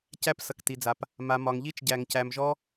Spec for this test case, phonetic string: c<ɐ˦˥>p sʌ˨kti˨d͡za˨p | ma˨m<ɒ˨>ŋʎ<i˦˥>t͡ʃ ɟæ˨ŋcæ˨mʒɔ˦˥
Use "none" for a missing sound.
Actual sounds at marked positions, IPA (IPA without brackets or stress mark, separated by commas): æ˦˥, ɒ˨, i˦˥